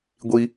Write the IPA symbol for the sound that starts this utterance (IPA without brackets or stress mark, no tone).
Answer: ɡʷ